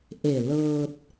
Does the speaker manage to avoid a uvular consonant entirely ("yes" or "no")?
yes